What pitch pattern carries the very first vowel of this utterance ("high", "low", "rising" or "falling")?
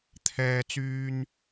high